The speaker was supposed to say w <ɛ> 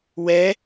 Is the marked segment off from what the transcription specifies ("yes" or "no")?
no